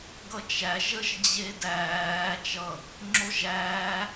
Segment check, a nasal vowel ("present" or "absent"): absent